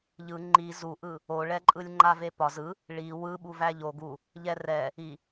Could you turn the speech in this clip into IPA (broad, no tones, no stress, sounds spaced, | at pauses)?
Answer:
ʎ ɯ ŋ͡ǃ i z u ʔ ɯ | o ɭ ɛ ǃʼ ɯ lʲ ŋ͡ǃ a v e p ɒ z ɯ | ɭ i w ɯ ɓ u v æ ʎ o ɡ u | ʎ ɛ r ɛ | i